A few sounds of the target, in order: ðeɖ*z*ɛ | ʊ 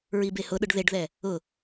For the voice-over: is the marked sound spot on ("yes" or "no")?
no